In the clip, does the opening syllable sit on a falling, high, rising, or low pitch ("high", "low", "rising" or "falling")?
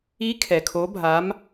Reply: rising